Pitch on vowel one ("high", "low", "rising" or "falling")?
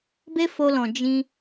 high